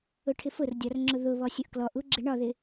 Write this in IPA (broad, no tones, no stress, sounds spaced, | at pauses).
ʊ ʈʰ ɪ f ʊ r dʲ ɒ r ŋ͡ǁ ʊ ð ʊ β ɔ sʲ ʊ ʔ k l ɔ ʔ u ɡ͡ǁ ɪ ɳ ɒ ð ɪ